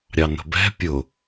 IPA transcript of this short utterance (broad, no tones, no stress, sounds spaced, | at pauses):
ɾʲ ɑ n ə̤ b ɛ̤ pʲ ʊ